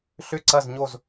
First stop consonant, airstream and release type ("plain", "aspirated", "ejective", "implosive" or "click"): click